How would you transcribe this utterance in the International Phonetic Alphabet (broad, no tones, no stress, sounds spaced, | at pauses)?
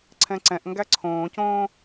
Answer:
ǀʰ ɛ̃ ǀ ɛ̃ ʔ ŋ ɡ æ ǀʰ õː c õː